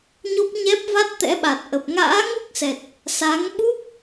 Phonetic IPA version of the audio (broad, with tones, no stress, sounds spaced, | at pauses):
ɲ o˦˥ p̚ ɲ ɛ˦˥ p̚ v a˦˥ t̚ t̪ ɛ̰˧˥ ɓ a˨˩ t̚ ʔ ə˨˩ p̚ ŋ a̰ː˧˥ ŋ u˦˥ k̚ s ɛ˨˩ t̚ | s a˨˦ ŋ ɓ u˦˥ p̚